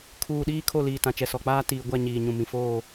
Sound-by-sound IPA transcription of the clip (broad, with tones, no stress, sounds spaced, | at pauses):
kʰ uː˨ ɗ iː˦ kʰ o˦˨ l iː˨ t ã˨ t͡ʃ ɛ˨ s ɔ˨ k͡p aː˦ t iː˨ ɡʷ a˦˨ ɲ iː˨ ɲ ũ˨ m ĩ˨ f oː˦˨